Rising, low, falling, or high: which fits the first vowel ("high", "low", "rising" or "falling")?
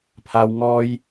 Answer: high